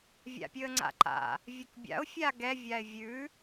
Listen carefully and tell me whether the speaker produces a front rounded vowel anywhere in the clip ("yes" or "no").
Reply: no